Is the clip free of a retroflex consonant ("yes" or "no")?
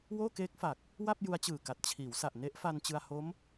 yes